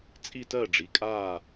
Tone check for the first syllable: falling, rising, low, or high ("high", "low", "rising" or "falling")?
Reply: falling